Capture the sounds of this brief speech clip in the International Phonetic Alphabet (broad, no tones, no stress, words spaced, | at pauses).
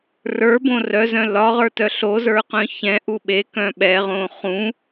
rə˞bõ rœzœ̃ lɒʁə˞tœ ɬozə˞qœ̃ çɛ̃ʔu ɓekœ̃ ɓɛʁõː χũ